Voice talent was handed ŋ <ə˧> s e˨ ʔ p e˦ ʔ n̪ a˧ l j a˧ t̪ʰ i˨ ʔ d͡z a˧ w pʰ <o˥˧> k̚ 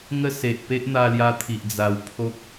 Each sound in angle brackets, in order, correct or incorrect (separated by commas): incorrect, incorrect